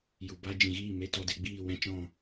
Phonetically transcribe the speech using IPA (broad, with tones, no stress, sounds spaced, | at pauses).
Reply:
j u˨ b a˦ d͡ʒ ĩ˨ ɣ iː˦˨ m e˧ t ɔ˧ d e˧ ɡ͡b iː˦˨ w ɛ̃˦ t͡ʃ ɔ̃˦˨